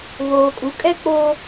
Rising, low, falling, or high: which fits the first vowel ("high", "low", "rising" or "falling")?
low